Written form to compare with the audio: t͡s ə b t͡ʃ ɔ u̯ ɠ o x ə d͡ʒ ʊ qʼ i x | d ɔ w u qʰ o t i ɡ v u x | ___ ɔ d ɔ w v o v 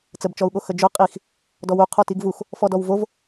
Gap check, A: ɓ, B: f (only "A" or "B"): B